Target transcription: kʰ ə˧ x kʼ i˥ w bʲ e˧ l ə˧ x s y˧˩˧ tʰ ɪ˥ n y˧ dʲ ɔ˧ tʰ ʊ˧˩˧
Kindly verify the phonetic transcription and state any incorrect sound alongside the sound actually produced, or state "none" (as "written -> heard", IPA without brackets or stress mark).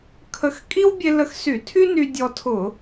ɪ˥ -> y˥